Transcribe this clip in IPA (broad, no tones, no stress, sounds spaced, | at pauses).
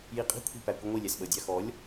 j i qʼ i̤ kʷʰ i̤ p æ kʷ i ŋʷ i lʲ æ s ɓ ə dʲ ɑ x ɔ lʲ